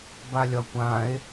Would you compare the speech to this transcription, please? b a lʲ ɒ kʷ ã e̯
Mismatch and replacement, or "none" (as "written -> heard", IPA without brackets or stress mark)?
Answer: none